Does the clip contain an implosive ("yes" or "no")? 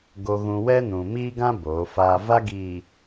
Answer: no